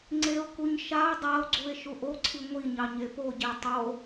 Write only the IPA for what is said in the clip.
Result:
ŋ͡ǀ e o̯ k u ɲ ʃ a o̯ dˤ a o̯ ɡ͡ǀ u e̯ ʃ u ʔ o ǀʰ i ŋʷ i ɲ ɑ ɲ e p o ɟ e tˤ o

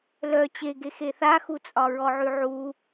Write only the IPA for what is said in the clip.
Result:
l œ t͡ɕ e ɡ e x e θ a x u t͡sʼ ɒ ɹ ɔ ʕ y ʕ u

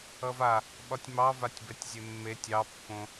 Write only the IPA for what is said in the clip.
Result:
ʌ v a | ɓ ɒ tʲ m ɑ v a tʲ b ɛ tʲ zʲ e mː e tʲ ɑ pː õ

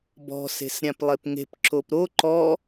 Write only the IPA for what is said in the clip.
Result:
b ɔ̤ s e̤ s ɾʲ ã p lˠ e p ŋ e̤ p ǁ o p ɾ o ǃ ɔ

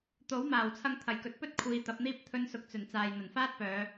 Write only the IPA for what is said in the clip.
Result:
t̪ o˨˥ w m aː˨˩ w t͡sʰ ɐ˧ ŋ t̪ʰ ɐ˨˩ j k ɵ˨ t̚ p ɵ˥ t̚ kʷʰ iː˨˧ t̪ ɐ˨˥ p̚ n̪ iː˥ p̚ t̪ʰ ɵ˧ n s ʊ˨ k̚ t͡s ɵ˨˩ n t͡s aː˨ j n̪ ɐ˨˩ n f aː˥ t̚ p œː˨˧

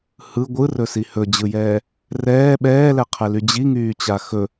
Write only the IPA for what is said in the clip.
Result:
h ɯ ɡʷ ɯ r ɵ s i h ɵ d͡ʑ ɯ j ɛː | r ɛː ɓ ɛː l ɛ qʰ ɛ l y d͡ʑ i ŋ yː t͡ɕ a x ɵ

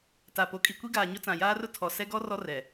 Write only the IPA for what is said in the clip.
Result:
t a˨ p o˨ kʼ i˨ kʷ i˦ ɡ aː˨ ɲ ʊ˦ t͡s ã˨ j aː˦ r ʊ˦ tʰ ɔ˨ s ɛ˦ ɡ ɔ˦ r ɔ˦ r ɛ˨

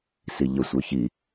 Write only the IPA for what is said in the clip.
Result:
s i ʎ ə sʷ ə˞ ç i

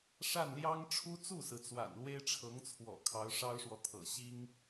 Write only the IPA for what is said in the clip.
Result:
ʂ a˥˩ n l j ɑ˥ ŋ ʈ͡ʂʰ u˥ t͡s u˥˩ s ɹ̩˩ t͡s w a̰˨˩ n l w e˥ ɪ̯ ʈ͡ʂʰ ɤ˧˥ ŋ t͡sʰ w ɔ̰˨˩ kʰ ɑ˧˥ ʊ̯ ʂ ɑ˥ ʊ̯ ʂ w ɔ˨ t̪ʰ ɤ̰˨˩ ɕ i˥ ŋ

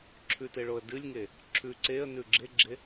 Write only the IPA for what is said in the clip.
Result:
ǁʰ ʉ t e ɭ o ə̯ d ɨ lʲ ŋ e | ǁʰ ʉ ǀ e ə̯ n ʉ ɡ͡ǁ e ɡ͡ǁ e

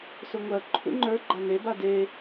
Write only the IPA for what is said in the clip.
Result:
s ʊ ŋʷ ɜ ǃʰ ṵ ŋ͡ǃ ə˞ ɡ͡ǃ a n e b a d e

